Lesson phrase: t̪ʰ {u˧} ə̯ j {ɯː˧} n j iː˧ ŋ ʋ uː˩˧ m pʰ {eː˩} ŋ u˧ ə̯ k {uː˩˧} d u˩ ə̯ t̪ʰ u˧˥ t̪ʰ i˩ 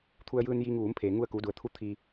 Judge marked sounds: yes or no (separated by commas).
yes, yes, yes, yes